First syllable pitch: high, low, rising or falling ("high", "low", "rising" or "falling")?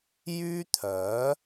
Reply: high